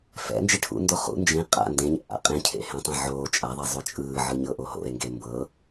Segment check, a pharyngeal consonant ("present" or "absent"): present